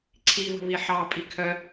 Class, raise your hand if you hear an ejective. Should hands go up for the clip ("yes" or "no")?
yes